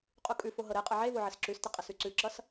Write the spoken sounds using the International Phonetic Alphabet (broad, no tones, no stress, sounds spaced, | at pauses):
qʼ u kʼ ʉ f o ɦ ɤ ɾ e qʼ ʌ ʕ e v o ʕ ɪ s ǁ ʉ s t ɪ qʼ ɪ s ʉ ǀ ʉ ǁ ʌ s